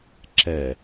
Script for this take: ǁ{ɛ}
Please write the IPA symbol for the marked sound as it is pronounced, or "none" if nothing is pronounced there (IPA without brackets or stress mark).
ɛ